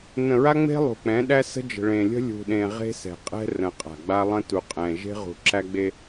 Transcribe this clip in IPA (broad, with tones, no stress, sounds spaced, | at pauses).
n ə̃˨ ɹ a˦ ŋ͡m e̤˦ lˠ ṳ˨ k͡p ɛ̃˨˦ ɗ æ˦ s ə̤˦ d͡ʒ ə̤˨ ɭ ẽ˨ lʲ ə̤˦ lʲ ṳ˨ ɗ ẽ˨ ʁ e̤˦ s ɛ̤˨ qʼ ɛ̤˦ r ə̃˨ qʼ a̤˨ ɡ͡b a˦ lˠ ə̃˦ t u˨ qʼ ɛ̃˨ ʒ e̤˦ ʁ ṳ˨ ǁ æ˦ ɡ͡b e˦